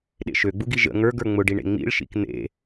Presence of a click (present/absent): absent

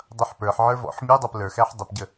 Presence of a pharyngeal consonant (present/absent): present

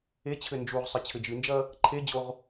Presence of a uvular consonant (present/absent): present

